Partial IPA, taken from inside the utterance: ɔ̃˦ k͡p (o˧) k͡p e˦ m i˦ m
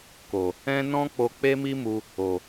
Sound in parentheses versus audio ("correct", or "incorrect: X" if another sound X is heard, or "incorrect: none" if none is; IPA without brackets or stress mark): correct